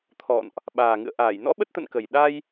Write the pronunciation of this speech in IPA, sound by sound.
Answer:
t̪ʰ ɔ̰˧˨ n ʔ | ɓ aː˨˩ ŋ ɨ̰˧˨ ə̯ ʔ aː˧˩ j n ɔ̰˧˥ ɓ ə˦˥ t̚ t̪ ə̰˧˨ n k ə˨˩ j ɗ a˧ j

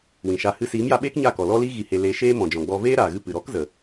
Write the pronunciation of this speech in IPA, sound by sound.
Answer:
w ĩ˨ ʃ aː˧ h ɨ˧ s iː˨˦ m j a˧ ɓ eː˦ k ɲ a˦˨ k ɔ˨ l ɔ˦ l i˦ ɣ i˧ h e˧ l e˧ ʃ eː˦ m ɔ̃˨ d͡ʒ ɔ̃˨ ɡ͡b ɔ˧ v eː˦ ɾ aː˨ ɣ ɨ˧ p ɨ˨ ɾ ɔ˦ k z ə˨

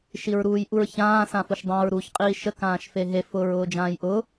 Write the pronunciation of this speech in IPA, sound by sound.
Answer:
ʃ i ɹ ɾ uː j ʔ u ɹ ç ãː s ã f ʊ ʃ dˤ ã ɹ ɾ uː ç qʼ iː ʃ ə k ãː ʃ f e ɦ e f ʊː ɹ ʊː d͡ʒ ãː j ʔ ʊ

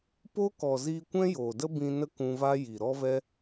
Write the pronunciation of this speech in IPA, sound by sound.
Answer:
p o˦ k ɔ˨ z iː˧ kʷ ɛ̃˦ j o˨ d ə˦ b ĩ˧ n ə˦ k ũ˧ v a˦ j i˨ ɾ ɔ˦ v ɛ˦

